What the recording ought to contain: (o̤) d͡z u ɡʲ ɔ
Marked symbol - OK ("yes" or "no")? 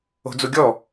yes